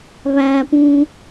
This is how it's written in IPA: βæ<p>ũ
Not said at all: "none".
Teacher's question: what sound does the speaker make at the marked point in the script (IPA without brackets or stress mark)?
p